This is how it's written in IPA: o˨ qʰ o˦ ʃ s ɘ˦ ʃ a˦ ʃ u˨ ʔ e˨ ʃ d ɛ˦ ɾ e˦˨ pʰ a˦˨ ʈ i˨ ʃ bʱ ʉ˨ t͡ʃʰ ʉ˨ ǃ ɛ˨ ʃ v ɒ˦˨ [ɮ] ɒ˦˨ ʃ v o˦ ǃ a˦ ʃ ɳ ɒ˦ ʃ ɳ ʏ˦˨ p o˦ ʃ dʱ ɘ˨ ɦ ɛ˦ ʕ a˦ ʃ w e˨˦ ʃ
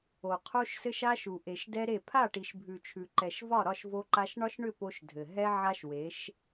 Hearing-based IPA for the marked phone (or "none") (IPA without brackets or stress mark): ɾ